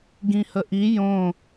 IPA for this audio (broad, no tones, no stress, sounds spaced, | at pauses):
ɡ ĩ h ə ʔ i j õ